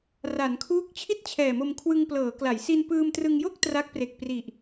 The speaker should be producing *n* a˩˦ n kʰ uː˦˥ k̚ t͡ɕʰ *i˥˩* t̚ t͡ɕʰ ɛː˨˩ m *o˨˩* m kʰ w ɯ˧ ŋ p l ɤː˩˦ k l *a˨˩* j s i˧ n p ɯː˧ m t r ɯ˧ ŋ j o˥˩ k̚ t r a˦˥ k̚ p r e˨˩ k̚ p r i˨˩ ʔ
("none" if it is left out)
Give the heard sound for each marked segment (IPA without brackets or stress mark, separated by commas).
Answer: r, i˥˩, o˧, a˩˦